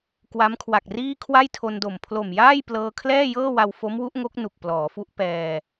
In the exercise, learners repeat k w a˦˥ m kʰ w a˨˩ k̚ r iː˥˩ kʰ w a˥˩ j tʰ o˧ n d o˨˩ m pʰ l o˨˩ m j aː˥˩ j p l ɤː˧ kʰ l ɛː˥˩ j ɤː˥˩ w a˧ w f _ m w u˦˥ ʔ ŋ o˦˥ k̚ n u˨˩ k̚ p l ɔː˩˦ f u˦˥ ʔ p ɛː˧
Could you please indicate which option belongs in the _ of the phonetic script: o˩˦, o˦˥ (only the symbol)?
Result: o˦˥